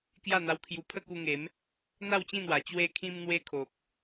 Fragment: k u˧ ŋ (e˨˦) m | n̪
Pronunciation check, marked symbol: correct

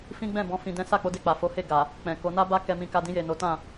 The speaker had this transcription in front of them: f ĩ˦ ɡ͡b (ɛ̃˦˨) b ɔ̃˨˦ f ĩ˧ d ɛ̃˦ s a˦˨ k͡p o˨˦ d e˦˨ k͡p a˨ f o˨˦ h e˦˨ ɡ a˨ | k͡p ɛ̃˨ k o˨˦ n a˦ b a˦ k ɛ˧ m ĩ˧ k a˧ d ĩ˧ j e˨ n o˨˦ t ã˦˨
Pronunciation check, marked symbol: correct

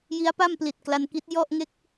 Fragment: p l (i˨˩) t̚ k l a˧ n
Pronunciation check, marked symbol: correct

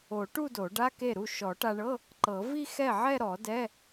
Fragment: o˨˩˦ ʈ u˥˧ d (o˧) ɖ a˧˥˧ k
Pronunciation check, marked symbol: incorrect: o˨˩˦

